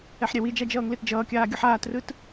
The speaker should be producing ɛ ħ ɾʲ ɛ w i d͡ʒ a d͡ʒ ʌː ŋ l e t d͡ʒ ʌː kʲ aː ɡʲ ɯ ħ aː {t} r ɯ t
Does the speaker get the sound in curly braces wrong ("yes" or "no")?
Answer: no